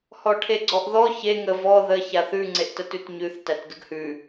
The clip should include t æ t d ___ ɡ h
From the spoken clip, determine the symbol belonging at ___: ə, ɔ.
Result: ə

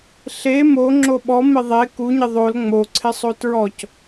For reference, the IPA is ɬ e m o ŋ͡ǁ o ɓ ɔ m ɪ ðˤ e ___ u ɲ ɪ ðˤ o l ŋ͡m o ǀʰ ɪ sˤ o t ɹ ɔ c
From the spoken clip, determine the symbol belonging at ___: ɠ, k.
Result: k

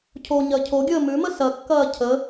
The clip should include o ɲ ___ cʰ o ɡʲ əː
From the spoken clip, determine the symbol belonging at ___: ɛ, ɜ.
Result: ɜ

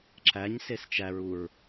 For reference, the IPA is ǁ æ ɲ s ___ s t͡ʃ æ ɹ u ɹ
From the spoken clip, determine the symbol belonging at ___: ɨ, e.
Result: e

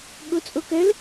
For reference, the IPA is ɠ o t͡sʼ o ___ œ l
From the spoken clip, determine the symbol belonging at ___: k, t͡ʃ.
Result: k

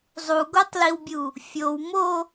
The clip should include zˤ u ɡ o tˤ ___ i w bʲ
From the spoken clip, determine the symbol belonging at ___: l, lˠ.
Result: l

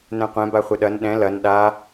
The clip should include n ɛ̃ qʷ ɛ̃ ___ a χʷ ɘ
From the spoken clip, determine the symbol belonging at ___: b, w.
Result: b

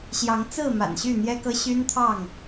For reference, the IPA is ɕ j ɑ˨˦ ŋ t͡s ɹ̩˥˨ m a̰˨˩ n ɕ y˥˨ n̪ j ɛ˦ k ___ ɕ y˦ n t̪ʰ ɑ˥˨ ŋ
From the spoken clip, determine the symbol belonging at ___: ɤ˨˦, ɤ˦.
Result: ɤ˦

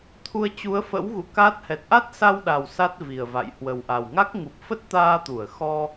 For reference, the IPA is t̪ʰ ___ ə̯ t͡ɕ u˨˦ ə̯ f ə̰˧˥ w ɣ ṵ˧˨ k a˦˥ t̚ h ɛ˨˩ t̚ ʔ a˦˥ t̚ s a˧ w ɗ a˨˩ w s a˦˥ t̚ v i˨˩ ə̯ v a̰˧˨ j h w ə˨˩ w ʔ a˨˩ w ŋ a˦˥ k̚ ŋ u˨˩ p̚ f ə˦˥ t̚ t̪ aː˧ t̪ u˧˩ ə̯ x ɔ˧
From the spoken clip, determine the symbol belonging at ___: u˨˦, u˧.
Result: u˧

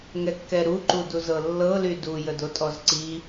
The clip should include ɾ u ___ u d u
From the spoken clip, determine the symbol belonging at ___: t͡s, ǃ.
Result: ǃ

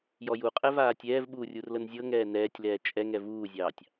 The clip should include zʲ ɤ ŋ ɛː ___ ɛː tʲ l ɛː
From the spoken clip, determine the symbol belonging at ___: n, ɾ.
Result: n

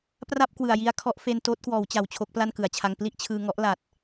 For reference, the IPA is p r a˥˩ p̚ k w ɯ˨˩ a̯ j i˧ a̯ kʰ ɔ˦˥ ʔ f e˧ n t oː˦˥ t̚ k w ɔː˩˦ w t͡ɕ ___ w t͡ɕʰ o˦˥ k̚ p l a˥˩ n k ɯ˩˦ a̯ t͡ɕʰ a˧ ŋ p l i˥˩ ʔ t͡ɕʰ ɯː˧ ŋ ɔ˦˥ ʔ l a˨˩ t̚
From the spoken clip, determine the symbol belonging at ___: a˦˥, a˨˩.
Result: a˨˩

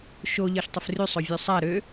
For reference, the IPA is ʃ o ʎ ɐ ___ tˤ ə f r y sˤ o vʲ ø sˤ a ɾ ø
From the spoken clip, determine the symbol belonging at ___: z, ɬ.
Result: ɬ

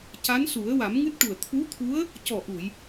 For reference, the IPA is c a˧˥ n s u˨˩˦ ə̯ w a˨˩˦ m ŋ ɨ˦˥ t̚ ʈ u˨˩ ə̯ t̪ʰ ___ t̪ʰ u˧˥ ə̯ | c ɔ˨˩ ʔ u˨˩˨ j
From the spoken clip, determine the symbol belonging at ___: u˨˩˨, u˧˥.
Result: u˧˥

